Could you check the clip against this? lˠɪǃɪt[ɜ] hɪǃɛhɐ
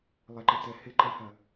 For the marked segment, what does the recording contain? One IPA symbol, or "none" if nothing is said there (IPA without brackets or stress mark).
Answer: ɛ